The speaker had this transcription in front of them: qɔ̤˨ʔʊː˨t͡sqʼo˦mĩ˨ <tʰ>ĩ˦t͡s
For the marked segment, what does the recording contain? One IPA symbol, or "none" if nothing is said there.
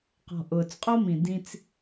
d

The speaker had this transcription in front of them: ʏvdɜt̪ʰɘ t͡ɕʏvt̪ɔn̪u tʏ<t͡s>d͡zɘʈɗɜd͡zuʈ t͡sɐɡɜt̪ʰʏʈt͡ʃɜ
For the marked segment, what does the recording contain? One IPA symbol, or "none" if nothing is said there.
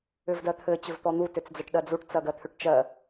t͡s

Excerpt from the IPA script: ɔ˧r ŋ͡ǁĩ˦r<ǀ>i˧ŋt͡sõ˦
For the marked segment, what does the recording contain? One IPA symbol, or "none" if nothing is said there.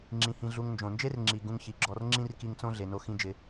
k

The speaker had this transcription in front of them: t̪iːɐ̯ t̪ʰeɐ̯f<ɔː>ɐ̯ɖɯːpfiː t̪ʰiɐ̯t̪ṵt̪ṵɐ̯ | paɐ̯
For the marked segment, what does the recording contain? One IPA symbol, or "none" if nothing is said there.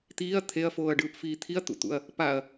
oː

